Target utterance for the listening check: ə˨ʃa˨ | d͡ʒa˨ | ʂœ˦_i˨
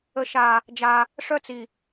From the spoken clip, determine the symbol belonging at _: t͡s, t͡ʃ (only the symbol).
t͡s